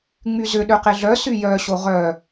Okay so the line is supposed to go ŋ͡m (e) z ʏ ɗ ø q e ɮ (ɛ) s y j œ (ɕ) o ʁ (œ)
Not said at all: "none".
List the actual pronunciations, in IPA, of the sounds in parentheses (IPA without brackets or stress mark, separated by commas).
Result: y, œ, ɕ, œ